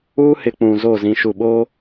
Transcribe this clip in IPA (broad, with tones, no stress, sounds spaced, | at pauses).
uː˦ h ɪ˨ k͡p ũ˨ z o˦˨ z ĩ˨ ʃ u˨ ɓ oː˦